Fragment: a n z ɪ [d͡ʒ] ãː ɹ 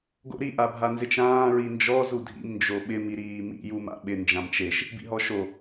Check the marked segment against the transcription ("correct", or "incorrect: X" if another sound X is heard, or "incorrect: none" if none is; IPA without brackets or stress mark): incorrect: t͡ʃ